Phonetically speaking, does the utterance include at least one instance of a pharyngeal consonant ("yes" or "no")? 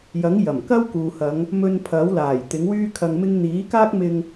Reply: no